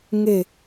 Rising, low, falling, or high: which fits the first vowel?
falling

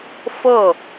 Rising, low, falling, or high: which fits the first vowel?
falling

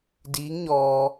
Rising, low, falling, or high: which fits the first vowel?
rising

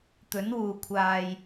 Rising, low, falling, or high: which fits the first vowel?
rising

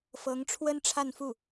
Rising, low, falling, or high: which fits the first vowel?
rising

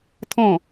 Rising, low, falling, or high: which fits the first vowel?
falling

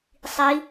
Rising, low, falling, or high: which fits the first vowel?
rising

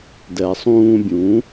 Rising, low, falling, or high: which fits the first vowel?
low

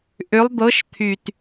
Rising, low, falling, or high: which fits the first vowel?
rising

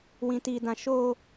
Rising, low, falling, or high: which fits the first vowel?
high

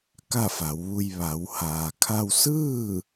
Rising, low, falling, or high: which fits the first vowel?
falling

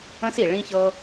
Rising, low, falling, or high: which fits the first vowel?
high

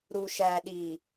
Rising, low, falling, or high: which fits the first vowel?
low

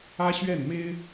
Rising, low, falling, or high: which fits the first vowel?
high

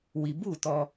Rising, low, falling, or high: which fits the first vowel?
low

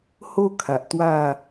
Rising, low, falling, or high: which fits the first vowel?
high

